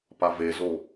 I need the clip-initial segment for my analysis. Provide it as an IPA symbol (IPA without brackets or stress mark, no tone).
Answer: p